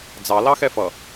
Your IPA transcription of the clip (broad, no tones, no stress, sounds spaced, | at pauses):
d͡z ɑ l ɑ x ɛ f ʌ